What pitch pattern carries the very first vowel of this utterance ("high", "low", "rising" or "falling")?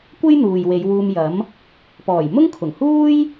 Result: high